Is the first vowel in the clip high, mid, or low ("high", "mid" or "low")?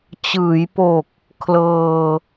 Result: high